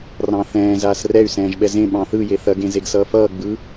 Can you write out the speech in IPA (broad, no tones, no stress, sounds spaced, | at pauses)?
r ɑ̃ θ ɛ̃ː z aː s r ɛ y̯ s ɛ̃ː ʒ ɓ ɛ z ẽ ɓ ɑ̃ θ ɯ j e θ ɐ ɡ ẽ z e ɡ s ʌː f ʌː ɡ͡b ɯ